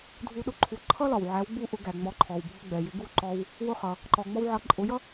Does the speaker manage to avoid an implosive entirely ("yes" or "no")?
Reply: no